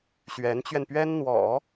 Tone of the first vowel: rising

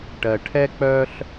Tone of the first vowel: low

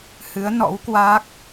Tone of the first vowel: rising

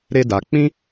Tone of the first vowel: high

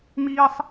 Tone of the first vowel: high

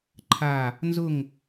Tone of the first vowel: falling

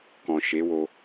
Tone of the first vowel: low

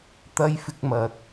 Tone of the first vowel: high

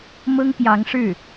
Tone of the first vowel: high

